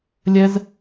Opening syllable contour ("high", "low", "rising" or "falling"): high